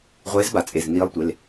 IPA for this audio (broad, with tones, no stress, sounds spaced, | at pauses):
ʁʷ eː˧˥ z b a˩˥ t͡sʼ e˩˧˩ z n iː˧˥ lˠ tʷ e˩˧˩ l